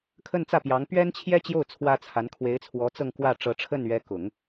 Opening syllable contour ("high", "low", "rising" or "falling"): falling